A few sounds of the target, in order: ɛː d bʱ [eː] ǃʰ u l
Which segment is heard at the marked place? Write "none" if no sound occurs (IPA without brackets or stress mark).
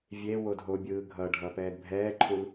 ɛː